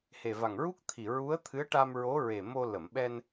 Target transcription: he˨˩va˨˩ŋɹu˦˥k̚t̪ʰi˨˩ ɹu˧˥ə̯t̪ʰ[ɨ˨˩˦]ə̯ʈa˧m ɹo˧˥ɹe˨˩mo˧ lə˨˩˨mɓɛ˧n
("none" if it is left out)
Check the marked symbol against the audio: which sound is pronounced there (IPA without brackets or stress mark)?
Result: ɨ˧˥